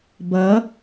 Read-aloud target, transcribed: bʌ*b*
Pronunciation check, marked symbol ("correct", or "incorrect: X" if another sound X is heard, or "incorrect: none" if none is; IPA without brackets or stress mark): incorrect: none